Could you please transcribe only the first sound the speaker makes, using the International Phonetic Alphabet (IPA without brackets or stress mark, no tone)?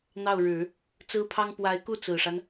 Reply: n̪